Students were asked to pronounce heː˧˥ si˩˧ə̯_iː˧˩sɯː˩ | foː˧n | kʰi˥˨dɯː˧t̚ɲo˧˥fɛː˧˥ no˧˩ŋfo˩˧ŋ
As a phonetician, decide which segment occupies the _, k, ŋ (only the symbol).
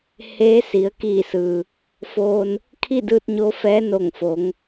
k